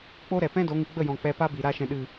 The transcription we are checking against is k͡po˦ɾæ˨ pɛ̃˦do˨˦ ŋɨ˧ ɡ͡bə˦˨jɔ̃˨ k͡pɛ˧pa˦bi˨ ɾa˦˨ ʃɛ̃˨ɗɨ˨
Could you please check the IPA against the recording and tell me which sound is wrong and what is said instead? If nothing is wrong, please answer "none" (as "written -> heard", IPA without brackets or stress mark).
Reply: æ˨ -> ɛ˨